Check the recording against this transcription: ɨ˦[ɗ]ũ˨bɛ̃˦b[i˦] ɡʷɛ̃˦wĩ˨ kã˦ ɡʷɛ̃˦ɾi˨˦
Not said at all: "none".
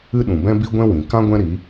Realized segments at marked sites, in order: ɗ, i˦

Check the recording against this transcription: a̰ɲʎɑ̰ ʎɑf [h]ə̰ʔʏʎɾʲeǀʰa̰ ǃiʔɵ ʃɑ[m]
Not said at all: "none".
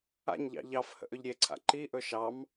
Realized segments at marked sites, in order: h, m

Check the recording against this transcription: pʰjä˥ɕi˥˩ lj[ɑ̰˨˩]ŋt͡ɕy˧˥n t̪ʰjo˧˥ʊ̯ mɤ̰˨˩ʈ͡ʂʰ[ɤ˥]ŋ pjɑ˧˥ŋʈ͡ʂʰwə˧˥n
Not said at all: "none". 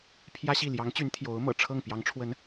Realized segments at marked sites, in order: ɑ˧˥, ɤ˥˩

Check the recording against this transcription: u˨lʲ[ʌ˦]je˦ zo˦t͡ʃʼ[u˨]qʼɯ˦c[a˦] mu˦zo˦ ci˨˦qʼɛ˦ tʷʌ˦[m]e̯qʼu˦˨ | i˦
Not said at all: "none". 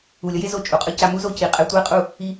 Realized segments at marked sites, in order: ʌ˦, u˨, a˦, none

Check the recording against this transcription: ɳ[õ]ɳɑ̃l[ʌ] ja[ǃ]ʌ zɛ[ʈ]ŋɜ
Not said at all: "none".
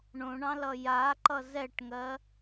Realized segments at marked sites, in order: õ, ʌ, ǃ, ʈ

